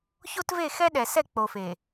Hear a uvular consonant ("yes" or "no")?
no